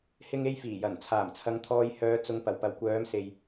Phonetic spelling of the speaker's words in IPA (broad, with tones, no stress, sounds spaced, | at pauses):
h ɪ˧ ŋ e˧ j f iː˨˩ j ɐ˨˩ n t͡sʰ aː˨˩ m t͡sʰ ɐ˨˧ ŋ t̪ʰ ɔː˧ j h œː˨˧ t͡s ʊ˨˧ ŋ p ɐ˨˩ w p ɐ˨˩ w kʷ œː˨˧ m s e˨ j